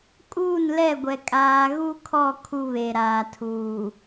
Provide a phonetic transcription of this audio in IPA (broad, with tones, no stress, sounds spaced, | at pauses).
kʼ uː˦˨ n l ɛ˦˨ ɡʷ ɛ˨ kʼ aː˨ ɣ u˦ kʰ ɔ˦˨ kʰ u˦ β e˨ ɾ aː˨ tʰ uː˨